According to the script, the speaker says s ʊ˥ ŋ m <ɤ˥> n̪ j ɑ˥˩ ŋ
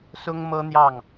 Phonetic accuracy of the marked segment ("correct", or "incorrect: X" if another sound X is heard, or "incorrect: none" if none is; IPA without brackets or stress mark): correct